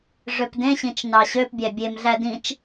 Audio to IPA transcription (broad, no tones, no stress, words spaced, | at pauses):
ʐøpdẽɕĩt͡ʃ nɑɕøpbʲæ bʲemɮæ dĩt͡ʃ